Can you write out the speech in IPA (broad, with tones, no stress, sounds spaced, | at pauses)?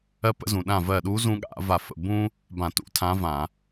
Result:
ɜ˥ p ə̰˧˥ z ũ˩ ɗ ã˧˩ v ɜ˧˩ ɗ u˧˥ z ũ˥ ɠ a̰˧˩˧ v a˧˩ f ə̰˧˩ b ũ˥ | b ã˧˩˧ t ṵ˧˥ tʰ ã˧˥ v ã˧˩˧